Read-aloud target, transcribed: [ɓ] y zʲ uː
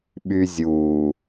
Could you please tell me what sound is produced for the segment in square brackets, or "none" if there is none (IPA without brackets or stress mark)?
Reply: ɓ